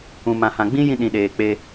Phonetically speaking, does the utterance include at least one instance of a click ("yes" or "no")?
no